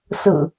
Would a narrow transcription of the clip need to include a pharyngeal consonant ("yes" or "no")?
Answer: no